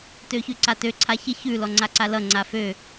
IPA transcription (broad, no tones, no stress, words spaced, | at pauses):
tøçʉǀatø ǀʰaçɪ çʉ lɔŋ͡ǀaǀalʌ ŋ͡ǀafø